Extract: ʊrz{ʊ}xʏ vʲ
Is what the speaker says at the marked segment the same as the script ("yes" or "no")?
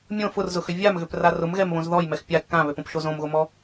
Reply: yes